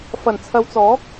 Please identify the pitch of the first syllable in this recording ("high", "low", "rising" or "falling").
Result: low